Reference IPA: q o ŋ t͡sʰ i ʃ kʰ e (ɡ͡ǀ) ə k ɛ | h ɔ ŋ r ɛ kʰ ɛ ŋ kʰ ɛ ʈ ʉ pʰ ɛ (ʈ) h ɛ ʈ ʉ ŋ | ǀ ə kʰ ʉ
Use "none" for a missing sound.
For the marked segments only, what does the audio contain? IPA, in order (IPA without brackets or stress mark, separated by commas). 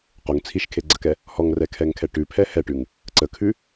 ɡ͡ǀ, none